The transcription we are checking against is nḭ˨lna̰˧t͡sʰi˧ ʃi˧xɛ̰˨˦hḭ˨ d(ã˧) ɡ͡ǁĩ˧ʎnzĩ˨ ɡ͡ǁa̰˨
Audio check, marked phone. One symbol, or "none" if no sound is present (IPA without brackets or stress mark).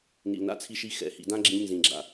ã˧